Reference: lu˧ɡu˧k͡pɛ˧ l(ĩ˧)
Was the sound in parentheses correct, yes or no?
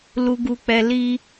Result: no